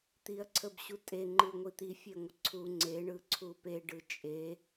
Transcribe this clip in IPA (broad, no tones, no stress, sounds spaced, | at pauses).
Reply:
t̪ i ɐ̯ ǀʰ ə b ɕ u tʼ e ŋ͡ǃ ɯ ŋʷ i t̪ i fʲ e ŋʷ ə ǀʰ u ŋ͡ǀ e ɳ ɯ ǀʰ u p e ɖ ɯ t͡ʃʼ e